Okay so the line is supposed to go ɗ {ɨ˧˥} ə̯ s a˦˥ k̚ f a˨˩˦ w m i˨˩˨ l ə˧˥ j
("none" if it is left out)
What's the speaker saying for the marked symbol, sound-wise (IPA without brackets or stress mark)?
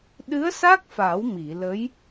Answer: ɨ˧˥